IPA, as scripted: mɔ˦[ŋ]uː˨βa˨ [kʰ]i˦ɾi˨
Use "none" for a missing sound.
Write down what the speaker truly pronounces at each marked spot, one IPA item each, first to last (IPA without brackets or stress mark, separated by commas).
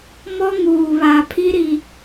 ŋ, pʰ